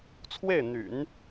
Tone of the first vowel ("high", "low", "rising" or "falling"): falling